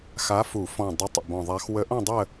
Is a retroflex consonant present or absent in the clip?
absent